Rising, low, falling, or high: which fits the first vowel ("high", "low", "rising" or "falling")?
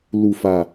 low